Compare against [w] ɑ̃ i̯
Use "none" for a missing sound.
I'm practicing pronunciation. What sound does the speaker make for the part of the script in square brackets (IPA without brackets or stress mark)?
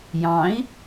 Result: j